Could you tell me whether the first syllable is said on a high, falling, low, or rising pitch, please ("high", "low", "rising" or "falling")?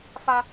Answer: high